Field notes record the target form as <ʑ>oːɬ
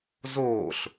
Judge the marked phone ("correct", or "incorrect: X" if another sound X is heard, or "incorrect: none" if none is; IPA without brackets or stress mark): incorrect: z